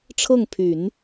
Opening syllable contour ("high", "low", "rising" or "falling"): falling